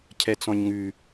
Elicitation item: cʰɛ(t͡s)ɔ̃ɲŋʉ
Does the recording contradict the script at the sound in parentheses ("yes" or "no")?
no